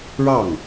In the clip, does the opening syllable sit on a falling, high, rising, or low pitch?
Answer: falling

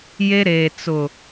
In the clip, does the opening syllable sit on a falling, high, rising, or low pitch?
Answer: high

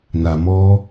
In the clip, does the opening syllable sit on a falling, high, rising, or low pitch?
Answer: low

